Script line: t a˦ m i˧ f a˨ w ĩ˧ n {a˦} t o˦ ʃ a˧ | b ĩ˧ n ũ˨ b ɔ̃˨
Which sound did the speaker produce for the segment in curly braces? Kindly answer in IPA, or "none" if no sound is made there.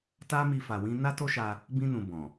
a˦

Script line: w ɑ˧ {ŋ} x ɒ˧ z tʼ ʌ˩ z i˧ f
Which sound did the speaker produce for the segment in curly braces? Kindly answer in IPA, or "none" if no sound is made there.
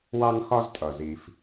ŋ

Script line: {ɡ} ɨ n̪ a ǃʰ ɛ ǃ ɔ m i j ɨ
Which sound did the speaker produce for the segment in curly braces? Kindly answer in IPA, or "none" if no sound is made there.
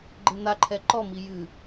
ɡ͡ǃ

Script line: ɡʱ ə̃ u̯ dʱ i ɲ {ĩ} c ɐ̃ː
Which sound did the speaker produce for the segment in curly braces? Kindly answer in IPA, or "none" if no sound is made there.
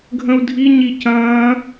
i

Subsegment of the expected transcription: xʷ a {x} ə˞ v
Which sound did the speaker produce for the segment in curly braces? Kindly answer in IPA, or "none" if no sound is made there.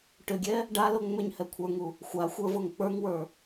xʷ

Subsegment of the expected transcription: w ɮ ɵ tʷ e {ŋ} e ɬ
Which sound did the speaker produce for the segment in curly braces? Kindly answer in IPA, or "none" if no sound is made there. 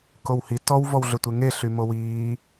ŋ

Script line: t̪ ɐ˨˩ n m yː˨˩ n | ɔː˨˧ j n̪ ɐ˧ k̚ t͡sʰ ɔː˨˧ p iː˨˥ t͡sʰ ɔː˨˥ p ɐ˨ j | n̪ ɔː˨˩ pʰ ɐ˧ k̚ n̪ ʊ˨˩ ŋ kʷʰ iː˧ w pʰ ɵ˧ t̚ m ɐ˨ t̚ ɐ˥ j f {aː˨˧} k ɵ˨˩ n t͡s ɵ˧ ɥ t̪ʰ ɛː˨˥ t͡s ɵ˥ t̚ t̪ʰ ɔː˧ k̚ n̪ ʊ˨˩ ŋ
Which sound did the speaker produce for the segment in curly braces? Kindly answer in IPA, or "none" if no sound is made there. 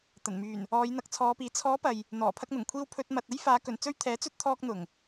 aː˨˧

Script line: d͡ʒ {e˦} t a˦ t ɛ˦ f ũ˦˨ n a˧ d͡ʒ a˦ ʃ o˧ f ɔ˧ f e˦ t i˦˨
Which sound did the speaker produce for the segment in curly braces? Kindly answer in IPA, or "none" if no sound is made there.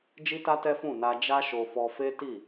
i˦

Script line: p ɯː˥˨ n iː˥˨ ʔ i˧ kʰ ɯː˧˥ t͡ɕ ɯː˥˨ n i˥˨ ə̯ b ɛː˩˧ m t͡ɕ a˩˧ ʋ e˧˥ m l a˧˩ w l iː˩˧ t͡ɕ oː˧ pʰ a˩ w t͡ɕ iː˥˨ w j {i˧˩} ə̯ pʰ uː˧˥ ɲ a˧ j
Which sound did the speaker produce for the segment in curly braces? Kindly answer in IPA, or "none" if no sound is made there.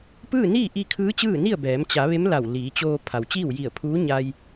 i˧˩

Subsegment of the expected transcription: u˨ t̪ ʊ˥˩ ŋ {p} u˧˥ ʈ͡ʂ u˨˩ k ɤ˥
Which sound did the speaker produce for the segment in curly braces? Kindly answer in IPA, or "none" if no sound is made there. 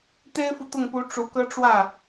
p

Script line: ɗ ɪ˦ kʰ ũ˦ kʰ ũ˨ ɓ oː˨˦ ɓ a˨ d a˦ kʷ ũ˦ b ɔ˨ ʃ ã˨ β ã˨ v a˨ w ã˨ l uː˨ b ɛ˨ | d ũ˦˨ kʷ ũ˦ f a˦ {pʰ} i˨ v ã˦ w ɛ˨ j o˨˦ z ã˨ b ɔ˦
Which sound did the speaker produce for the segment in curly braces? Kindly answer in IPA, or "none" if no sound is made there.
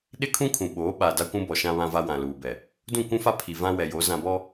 pʰ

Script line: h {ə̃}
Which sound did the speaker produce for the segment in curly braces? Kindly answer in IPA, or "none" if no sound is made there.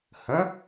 ə̃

